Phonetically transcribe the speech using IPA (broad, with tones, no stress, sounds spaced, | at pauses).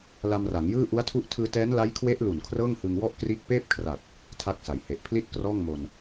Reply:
l a˧ m r a˩˦ ŋ j ɯː˥˩ ʔ u˦˥ a̯ tʰ u˥˩ ʔ tʰ ɯː˧ t ɛː˦˥ n l a˦˥ j kʰ w e˦˥ ʔ l u˨˩ n kʰ r ɤː˥˩ ŋ h ɯ˧ ŋ w ɔ˥˩ ʔ k r iː˦˥ k̚ p eː˥˩ p̚ kʰ r a˨˩ t̚ | tʰ a˥˩ k̚ s a˩˦ j h e˨˩ ʔ pʰ l i˥˩ t̚ k r ɔː˥˩ ŋ m o˧ n